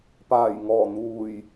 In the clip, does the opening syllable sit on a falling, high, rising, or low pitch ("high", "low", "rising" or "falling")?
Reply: low